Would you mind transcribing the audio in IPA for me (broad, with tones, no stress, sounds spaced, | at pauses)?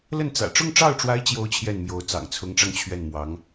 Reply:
l ə˥˩ n t͡s ä̰˨˩ ʈ͡ʂ ʊ˥˧ ŋ ʈ͡ʂ ɑ˥˩ ʊ̯ ʈ͡ʂ w a˧˥ ɪ̯ t͡ɕ j o˥ ʊ̯ t͡ɕʰ j ɛ˥˩ n m j o˧˥ ʊ̯ t͡s ɑ̰˨˩ ŋ t͡sʰ ʊ˧˥ ŋ ʈ͡ʂ ɑ˧ ŋ t͡ɕʰ ɥ ɛ˥˩ n m w ɑ˧˥ ŋ